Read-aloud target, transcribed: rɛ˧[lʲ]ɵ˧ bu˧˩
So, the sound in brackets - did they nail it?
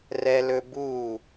no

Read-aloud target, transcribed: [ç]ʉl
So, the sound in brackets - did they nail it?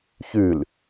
yes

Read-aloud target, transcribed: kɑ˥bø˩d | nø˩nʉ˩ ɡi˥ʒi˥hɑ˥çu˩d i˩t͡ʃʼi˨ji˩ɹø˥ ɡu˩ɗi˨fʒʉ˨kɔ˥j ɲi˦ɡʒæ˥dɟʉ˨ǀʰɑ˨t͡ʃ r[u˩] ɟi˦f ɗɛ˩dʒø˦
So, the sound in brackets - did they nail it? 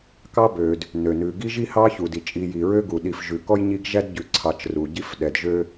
yes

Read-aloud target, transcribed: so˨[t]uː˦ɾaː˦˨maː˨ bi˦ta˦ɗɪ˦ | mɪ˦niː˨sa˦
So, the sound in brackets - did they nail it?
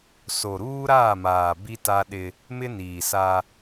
no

